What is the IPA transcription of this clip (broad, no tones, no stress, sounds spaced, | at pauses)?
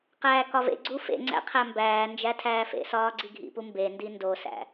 q æː k ɒ v ḛ ɡ͡ǀ u f ḛ ŋ͡ǀ æ̰ qʰ æ m b æː n d͡ʒ æ tʰ æː f ḛ s ɒː ɡ͡ǀ i ɡʱ ḭ p u m b e n d i n d o s æ̰